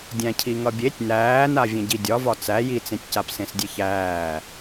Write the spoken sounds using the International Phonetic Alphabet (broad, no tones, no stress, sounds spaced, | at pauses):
dʲ æ̃ cʰ i ŋ ʌ bʲ e tʲ n æː n a vʲ ẽ ɟ i dʲ ɒ v ɒ t͡s æ j i t͡s ẽ tʲ c a p s ẽ s dʲ e ç æː